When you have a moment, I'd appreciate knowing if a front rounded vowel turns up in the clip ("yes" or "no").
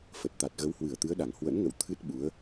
no